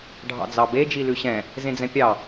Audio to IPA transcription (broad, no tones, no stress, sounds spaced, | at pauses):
ɖʱ ɑ̰ d͡z ɑ b e d͡ʒ i l ʉ ɕ ɛ̃ | z ẽ d͡z ɛ̃ pʲ ɑ